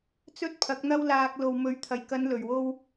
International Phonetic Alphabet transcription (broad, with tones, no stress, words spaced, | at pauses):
t͡sɵ˥t̚pʰɐ˨˥k̚ n̪ɐ˥w laː˧k̚ lo˨wmɵ˨˧ɥt̪ʰɐ˨˩jkɐ˨˧n lɵ˨ɥwo˥w